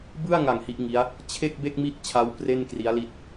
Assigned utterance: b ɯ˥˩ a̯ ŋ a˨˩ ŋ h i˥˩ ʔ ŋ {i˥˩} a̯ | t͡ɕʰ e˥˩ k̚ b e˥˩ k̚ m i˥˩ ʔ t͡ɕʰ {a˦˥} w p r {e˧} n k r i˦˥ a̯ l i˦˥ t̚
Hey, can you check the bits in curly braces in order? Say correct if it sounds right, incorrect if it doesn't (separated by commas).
incorrect, correct, incorrect